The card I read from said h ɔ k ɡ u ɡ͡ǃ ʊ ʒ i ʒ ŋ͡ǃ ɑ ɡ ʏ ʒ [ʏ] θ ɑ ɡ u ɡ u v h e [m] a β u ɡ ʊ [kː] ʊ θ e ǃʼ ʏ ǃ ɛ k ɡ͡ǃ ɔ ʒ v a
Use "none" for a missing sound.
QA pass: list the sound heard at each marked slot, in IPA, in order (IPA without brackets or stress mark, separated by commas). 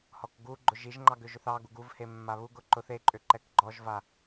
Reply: ʏ, mː, ǃ